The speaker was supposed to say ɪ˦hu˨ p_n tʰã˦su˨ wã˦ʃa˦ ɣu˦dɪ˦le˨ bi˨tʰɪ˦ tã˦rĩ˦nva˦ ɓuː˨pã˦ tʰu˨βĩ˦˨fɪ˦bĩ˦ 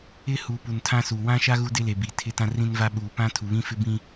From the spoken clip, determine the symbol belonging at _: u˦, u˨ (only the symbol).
u˨